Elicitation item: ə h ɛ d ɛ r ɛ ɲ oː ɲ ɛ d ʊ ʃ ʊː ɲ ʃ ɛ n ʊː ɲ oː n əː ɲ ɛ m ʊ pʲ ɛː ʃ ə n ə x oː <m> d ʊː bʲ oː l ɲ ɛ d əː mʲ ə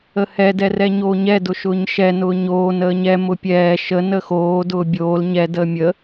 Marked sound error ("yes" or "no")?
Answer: yes